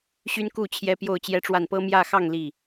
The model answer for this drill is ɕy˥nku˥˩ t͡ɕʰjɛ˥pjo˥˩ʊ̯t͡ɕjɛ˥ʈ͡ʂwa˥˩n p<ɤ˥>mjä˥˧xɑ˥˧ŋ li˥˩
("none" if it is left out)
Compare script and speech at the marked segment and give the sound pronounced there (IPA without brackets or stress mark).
ɤ˥